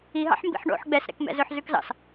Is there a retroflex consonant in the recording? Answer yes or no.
yes